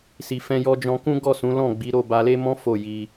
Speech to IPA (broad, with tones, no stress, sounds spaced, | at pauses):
s i˧ f ɛ̃˦ j ɔ˦ d͡ʒ ɔ̃˧ k ũ˦ ɡ ɔ˦˨ s ũ˨˦ l ɔ̃˦˨ ɡ͡b i˨˦ ɾ o˦˨ b a˧ l e˦ m ɔ̃˦ f o˦˨ j i˧